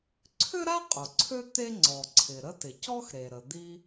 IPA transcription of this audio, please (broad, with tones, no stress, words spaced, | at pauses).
ǀʰʏ˥ɾa˥ qʼʊ˩ǀʰø˥ t̪e˥ ŋ͡ǀɔ˩ ǀʰɪ˩ ɾə˥tɪ˩ cɔ˥x ɾe˩ɾə˩d̪i˥